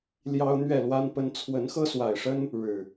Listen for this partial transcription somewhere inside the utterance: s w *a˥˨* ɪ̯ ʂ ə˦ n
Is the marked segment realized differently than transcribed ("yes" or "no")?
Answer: yes